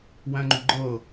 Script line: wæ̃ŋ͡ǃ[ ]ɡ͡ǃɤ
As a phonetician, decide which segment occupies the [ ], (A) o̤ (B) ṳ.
B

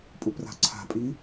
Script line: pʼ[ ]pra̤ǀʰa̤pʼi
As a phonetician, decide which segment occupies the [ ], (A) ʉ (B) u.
B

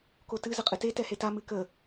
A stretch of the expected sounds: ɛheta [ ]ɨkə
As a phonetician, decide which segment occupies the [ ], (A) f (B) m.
B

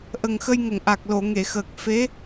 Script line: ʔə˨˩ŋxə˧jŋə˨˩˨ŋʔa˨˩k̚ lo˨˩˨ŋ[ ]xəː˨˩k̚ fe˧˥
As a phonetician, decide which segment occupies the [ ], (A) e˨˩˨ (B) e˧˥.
A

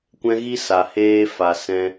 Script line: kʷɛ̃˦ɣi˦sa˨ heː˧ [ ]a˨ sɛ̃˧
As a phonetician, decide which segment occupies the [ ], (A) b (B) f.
B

